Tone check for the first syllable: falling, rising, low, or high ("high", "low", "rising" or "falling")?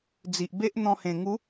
low